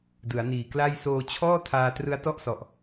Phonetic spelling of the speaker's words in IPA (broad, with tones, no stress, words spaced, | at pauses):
dɯ˩˦a̯niː˨˩kla˥˩j soː˧t͡ɕʰɔː˥˩ tʰaː˧trɯ˦˥a̯tɔ˥˩ʔsɔ˨˩ʔ